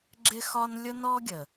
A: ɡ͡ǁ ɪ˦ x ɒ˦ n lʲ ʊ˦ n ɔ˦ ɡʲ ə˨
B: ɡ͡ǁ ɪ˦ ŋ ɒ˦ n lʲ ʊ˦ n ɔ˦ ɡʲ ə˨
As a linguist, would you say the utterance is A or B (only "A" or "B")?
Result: A